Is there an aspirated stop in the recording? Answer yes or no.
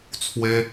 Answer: yes